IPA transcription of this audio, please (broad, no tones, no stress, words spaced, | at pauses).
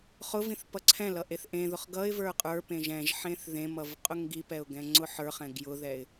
χʊvĩθ pʌǀʰɛ̃lʌ ʔeθʔẽðʊχ ɡʌɪ̯ və˞qʼə˞pẽʒ ɛ̃ʒ ħẽθðẽmʌv qʼʊŋɡipɛʊ̯ ɡɛ̃ŋ͡ǀʊħə˞χɛ̃ ɡjʊðɛɪ̯